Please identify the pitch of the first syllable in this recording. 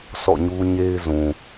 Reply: falling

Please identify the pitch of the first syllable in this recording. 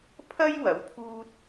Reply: high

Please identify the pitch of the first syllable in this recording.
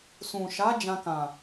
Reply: low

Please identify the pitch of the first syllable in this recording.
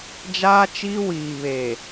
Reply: high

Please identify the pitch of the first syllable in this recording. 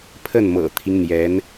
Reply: falling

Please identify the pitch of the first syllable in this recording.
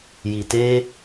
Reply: low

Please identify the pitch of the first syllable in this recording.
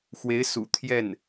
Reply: rising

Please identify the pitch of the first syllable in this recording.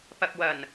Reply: low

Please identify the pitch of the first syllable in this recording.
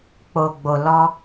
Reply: low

